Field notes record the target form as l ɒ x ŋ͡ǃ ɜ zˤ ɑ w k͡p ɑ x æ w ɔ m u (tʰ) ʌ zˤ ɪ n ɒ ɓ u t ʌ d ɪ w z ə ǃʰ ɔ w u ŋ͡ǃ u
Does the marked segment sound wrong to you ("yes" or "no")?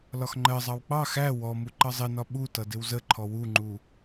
yes